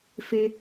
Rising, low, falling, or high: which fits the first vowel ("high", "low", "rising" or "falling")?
high